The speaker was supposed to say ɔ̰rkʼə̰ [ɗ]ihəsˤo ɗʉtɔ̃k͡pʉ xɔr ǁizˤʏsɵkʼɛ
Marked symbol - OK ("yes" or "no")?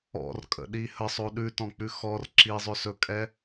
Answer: yes